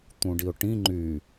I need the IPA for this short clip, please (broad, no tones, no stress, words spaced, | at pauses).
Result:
t̪ũɖiʊ̯ʈĩ ŋ͡ǃy